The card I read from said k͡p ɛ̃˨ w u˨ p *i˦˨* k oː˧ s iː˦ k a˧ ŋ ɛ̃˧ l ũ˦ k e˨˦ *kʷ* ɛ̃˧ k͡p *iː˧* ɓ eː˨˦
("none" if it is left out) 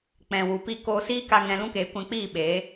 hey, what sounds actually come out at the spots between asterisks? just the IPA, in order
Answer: i˦˨, kʷ, iː˦˨

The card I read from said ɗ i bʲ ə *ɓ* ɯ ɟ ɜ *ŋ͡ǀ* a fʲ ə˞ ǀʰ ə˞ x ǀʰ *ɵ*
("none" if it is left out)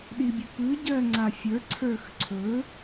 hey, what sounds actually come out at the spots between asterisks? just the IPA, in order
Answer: p, ŋ͡ǀ, ɵ

